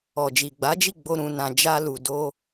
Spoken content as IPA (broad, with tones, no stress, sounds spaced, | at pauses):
ɔ˨ d͡ʒ i˨ ɡ͡b a˨˦ d͡ʒ i˦˨ ɡ͡b o˧ ɾ ũ˧ n ã˧ d͡ʒ a˦ l u˧ d o˦